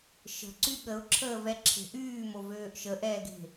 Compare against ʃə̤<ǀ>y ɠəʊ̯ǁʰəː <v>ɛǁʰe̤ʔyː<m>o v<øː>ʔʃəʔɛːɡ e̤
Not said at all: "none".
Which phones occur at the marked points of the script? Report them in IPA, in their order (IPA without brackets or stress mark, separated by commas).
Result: ǀ, v, m, øː